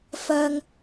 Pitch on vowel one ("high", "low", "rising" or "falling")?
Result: high